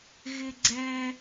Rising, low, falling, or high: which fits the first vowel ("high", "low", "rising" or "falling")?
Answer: high